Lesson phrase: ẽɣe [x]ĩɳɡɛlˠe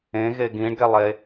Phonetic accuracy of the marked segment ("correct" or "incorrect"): incorrect